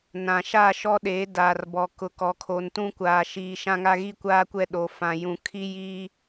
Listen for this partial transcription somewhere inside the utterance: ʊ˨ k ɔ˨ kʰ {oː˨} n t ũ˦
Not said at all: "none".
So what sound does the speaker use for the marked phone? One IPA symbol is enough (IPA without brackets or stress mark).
o˨